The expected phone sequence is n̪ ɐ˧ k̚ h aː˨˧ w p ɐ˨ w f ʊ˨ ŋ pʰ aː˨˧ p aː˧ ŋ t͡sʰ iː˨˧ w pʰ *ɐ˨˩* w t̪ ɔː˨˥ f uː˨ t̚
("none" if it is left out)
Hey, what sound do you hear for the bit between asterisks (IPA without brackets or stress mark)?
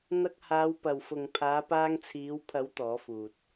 ɐ˨˥